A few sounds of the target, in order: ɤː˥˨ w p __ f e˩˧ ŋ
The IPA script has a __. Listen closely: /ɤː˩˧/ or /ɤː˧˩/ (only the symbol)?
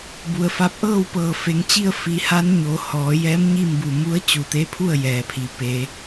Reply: ɤː˧˩